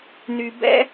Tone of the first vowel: low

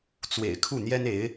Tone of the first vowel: low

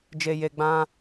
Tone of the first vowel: low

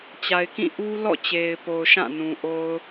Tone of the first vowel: low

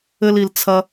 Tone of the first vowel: low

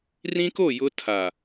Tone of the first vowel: high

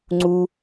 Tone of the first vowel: high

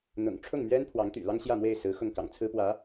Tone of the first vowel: low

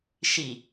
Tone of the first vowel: low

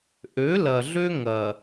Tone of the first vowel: rising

